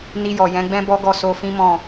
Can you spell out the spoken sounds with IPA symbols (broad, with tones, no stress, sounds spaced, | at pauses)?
n i˧ j ɔ˨ j ɛ̃˨˦ ɡ͡b ɛ̃˦ b ɔ˦ ɡ ɔ˦˨ s o˧ f ĩ˦ m ɔ̃˦˨